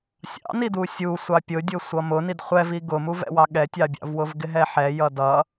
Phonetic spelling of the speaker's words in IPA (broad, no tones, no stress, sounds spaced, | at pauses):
sʲ ɑ̰ n i d u sʲ u sʷ ɑ pʲ ʊ dʲ ʊ sʷ ʌ m ʊ n i d χʷ ɛ v i ɡ ʊ m u v ɛ̰ w ɑ ɠ ɛ tʲ ɑ bʲ ɑ̰ v w ʊ v ɡ ɪ ɦ ɛ ħ ɛ j ʌ d ʌ